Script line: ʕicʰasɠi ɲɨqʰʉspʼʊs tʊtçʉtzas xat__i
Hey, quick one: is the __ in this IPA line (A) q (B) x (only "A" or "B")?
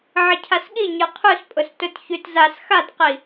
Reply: A